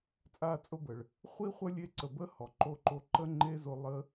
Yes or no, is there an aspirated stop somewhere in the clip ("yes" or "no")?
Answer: no